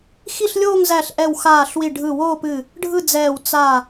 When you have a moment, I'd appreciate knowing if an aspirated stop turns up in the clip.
no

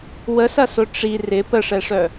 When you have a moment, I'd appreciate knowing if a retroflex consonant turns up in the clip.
yes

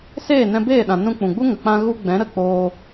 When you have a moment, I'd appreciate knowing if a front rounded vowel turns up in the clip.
no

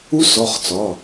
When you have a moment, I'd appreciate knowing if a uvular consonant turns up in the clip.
yes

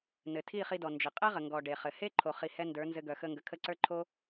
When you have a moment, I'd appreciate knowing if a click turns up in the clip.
yes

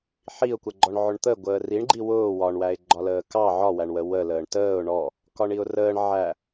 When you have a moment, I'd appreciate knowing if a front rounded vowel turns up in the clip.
no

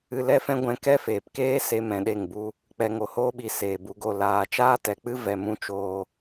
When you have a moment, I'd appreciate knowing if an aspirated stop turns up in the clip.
no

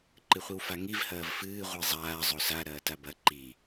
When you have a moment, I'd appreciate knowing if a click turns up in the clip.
yes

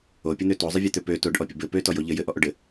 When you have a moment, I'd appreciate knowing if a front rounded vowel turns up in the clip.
yes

